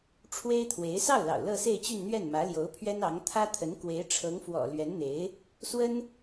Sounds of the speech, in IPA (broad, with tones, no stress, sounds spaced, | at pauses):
ʈ͡ʂʰ w e˥ ɪ̯ t̪ʰ w e˧˥ ɪ̯ s ɑ˥˩ ʊ̯ l ɑ̰˨˩ ʊ̯ l ɤ˥˧ s e˥˧ ɪ̯ t͡ɕ y˥˧ n n̪ ɥ ɛ˥˩ n m ä˧˥ l j o˧˥ ʊ̯ pʰ ɥ ɛ˥ n ɑ˧˥ ŋ t̪ʰ ä˥ t̪ʰ ə˧˥ n k w e˧˥ ɪ̯ ʈ͡ʂʰ ɤ˧˥ ŋ f w ɔ̰˨˩ l ɥ ɛ˧˥ n n̪ e˧˥ ɪ̯ | s w ə˥ n